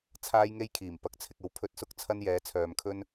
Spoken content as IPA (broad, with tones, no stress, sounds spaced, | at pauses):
t͡sʰ aː˥ j ŋ e˥ j kʰ iː˨˩ m p ɐ˨˥ k̚ t͡sʰ ɪ˨ k̚ ɐ˨˥ w pʰ ɵ˧ t̚ s ʊ˥ k̚ t͡sʰ ɐ˥ n j ɛː˨˥ t͡sʰ œː˨ m kʰ ɵ˥ n